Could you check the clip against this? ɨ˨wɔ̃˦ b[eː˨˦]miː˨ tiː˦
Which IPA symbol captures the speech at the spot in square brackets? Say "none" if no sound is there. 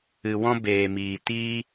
eː˨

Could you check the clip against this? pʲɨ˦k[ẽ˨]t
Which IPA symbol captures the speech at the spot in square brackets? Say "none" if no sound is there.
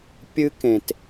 ẽ˨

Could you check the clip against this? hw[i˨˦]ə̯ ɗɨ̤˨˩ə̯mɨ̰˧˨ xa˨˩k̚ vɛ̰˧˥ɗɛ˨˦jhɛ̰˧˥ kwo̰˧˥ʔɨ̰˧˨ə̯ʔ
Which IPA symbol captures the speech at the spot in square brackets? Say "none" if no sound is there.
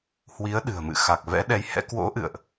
i˨˦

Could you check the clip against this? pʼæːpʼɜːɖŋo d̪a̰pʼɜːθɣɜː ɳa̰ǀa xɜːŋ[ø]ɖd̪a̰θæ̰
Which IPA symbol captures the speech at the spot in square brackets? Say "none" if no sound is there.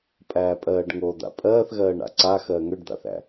ø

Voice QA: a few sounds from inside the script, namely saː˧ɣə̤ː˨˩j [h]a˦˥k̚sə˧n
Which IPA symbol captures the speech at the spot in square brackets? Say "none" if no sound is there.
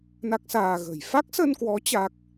f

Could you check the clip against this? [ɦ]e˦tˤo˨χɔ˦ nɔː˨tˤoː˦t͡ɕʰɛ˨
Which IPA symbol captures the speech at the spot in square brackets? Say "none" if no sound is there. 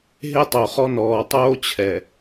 ɦ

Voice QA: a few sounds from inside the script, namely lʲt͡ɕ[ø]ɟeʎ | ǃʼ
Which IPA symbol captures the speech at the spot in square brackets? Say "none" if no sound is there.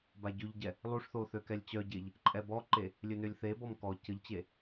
œ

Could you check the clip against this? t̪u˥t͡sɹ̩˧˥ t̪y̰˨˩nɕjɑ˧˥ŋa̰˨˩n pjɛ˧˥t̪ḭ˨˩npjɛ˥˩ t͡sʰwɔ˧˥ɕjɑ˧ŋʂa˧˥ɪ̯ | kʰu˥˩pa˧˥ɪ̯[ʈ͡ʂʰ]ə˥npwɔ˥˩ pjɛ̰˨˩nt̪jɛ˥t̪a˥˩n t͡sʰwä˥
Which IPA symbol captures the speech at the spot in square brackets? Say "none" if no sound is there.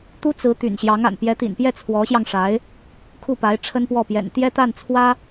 ʈ͡ʂʰ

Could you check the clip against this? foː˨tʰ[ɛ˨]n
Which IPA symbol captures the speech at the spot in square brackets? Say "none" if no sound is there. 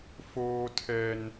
ɛ˨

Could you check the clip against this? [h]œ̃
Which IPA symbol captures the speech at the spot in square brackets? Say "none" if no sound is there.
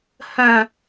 h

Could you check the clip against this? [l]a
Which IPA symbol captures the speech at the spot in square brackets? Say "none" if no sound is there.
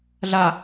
ɮ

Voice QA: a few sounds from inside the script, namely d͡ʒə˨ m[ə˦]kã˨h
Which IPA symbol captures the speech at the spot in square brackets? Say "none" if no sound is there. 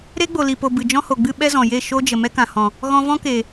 ɛ˦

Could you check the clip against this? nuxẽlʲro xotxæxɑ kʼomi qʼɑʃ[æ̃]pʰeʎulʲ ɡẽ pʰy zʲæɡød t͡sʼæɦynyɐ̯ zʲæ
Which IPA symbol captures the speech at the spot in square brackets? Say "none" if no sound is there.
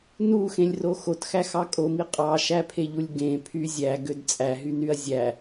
æ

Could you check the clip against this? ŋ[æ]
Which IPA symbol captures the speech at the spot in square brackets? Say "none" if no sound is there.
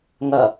ɐ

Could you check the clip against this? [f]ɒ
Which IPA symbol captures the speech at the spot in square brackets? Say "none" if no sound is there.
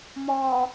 m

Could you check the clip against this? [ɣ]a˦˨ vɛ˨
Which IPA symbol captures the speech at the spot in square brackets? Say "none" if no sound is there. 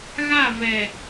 ɣ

